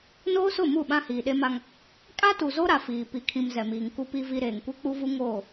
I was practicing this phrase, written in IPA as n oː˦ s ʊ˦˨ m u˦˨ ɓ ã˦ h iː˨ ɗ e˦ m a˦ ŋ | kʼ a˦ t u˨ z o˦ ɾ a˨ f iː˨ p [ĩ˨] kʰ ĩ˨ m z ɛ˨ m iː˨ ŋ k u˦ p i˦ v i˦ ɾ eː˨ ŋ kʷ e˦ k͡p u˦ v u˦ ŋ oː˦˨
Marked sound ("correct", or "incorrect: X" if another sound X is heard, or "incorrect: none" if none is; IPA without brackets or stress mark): incorrect: i˨